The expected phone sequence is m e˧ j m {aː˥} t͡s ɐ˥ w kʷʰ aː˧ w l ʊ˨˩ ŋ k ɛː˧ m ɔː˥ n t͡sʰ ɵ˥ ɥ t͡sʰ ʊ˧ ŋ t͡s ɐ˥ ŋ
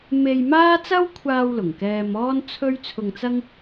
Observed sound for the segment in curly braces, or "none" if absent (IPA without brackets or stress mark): aː˥